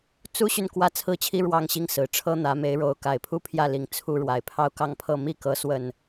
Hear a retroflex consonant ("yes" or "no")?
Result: yes